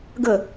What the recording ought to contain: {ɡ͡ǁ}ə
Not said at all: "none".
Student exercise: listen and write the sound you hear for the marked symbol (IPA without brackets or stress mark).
ɡ